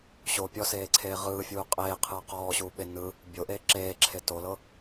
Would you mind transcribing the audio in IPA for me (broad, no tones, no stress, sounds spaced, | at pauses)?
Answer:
ɕ o pʲ ɔ s eː ǀʰ eː ʁ ɯː fʲ uː qʼ eː qʰ ɯː q ɔː ɕ uː ɓ e n ɯ | bʲ o ʔ eː ǁ eː ǁʰ e t o l ɤ